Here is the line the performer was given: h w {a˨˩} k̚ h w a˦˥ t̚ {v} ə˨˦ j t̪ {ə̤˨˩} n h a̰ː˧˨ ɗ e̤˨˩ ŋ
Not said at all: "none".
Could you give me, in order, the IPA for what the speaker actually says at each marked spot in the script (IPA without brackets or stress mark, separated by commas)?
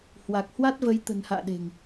a˨˩, v, ə̤˨˩